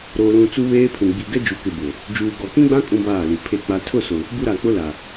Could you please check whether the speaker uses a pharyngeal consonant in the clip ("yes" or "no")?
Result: no